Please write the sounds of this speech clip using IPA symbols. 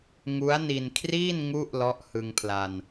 ŋ u˦˥ a̯ n i˧ n kʰ r iː˥˩ n ŋ u˥˩ ʔ l ɔ˦˥ ʔ h ɯ˧ ŋ pʰ l a˧ n

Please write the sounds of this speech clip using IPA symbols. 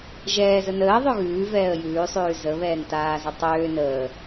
ʒ ɛː z ə n əː ðˤ ø ɣ ʉː v ɛː ə̯ j ʉː sˤ ʉː z ə β ɛː n t aː z ə tˤ øː n əː

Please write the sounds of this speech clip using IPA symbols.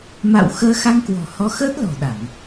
m a̰˧˨ w x əː˧ x a˧ ŋ k w ɔ̤˨˩ h ɔ˧ x əː˦˥ t̚ l ɔ̤˨˩ ɗ a˧˩˨ ŋ

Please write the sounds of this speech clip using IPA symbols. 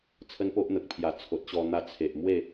t͡sʰ ə˦ n p o˦ ʔ n̪ ə˨ k̚ pʰ j a˨˩ t͡sʰ o˨ t̚ ɕ ɔ˧ n̪ a˧ t͡sʰ e˨ ʔ m w e˥˧

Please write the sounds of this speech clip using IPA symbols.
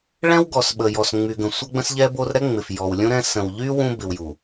ɭ ɛ̃˦ w ɡ ɔ˨ s ɓ ə˨ j ɔ˨ s ŋ͡m y˨ ɡ ə̃˨ sʷ ʌ˦ ɡ͡b ə̃˦ s ʎ ɛ˦ b o˦ r ɾ ɛ˦ ŋ͡m ɪ˨ f j ɔ˨ w lʲ ũ˦ ɾ ɛ̃˦ s ə̃˨ w ʎ y˦ w ũ˦ b ɪ˨ w j u˨

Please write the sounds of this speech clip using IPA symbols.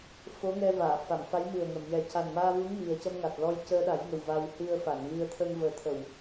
f o˧˥ ŋ ɛ˧ v aː˨˩˨ f a˨˩˨ m f a˧˥ j m ɨ˨˩ ə̯ ŋ ə˨˩˨ m j ɛ˨˩ c a˨˩ n m aː˧ v u˧˥ ŋ m i˨˩ ə̯ c ə˧ m ŋ a˨˩ t̚ l ɔ˧ j c əː˧ ɗ a˨˩˦ j ŋ ə˨˩ w v a˧ w h ɨ˧ ə̯ f a˨˩˨ n v ɨ˧ ə̯ t̪ʰ ə˧ ŋ v əː˨˩˦ t̪ʰ ə˨˩˨ w

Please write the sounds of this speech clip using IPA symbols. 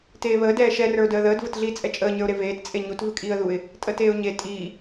t eː β əː d ɛː ʃ ɛ r ə˞ ʊ̯ d əː ð əː d v ə t ɮ iː t͡sʼ ɛ t͡ʃʼ əː ɲ ə˞ ʊ̯ ɾ e v eː t t͡sʼ e ɲ u t v ɨ kʼ iː ə̯ ð u ɪ̯ | tʼ əː t eː ʊ̯ ɲ e tʼ iː

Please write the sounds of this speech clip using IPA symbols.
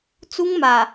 t͡s u˦ ŋ m a˨

